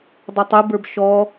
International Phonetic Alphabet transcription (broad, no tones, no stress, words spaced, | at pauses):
dˤotˤɯbə˞b ʃɔ